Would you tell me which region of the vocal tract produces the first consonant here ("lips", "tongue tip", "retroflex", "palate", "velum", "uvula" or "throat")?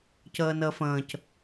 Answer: palate